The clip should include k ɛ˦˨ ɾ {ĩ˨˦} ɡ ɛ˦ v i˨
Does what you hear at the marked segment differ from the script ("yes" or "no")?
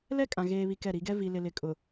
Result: yes